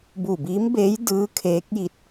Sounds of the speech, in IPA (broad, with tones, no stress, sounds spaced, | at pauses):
b u˧˩ b iː˧˥ m b eː˧˥ j d ɯː˧˥ kʰ eː˧˥ k̚ j i˧˥ t̚